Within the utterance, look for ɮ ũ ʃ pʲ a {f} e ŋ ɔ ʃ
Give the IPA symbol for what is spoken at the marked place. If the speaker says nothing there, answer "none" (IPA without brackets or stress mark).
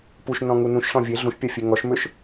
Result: fʲ